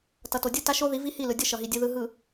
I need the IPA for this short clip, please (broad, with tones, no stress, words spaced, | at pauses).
tʌ˨to˨ dʲɯ˦˨ta˦ʃo˦ði˨˦ vi˦hi˦˨lɯ˨ dʲʌ˦ʃʌ˨ɦi˨ dʲɯ˨ðɯ˨ɦɯ˨